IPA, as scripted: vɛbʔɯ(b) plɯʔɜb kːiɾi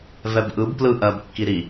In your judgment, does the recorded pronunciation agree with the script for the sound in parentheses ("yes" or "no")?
yes